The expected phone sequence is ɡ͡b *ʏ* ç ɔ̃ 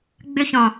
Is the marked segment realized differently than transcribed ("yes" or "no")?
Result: no